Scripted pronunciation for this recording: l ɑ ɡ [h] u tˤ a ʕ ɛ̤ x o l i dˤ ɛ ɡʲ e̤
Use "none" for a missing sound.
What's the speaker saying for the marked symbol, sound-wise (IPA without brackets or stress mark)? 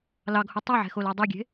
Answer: h